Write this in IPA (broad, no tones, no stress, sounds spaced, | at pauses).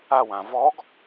a w ã v ɔ ɡ